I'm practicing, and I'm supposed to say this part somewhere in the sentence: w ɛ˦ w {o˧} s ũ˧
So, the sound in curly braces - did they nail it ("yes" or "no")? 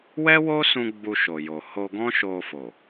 no